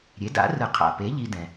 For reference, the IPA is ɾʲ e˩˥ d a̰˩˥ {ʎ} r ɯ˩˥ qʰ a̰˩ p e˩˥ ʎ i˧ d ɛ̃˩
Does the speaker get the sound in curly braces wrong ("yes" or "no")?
yes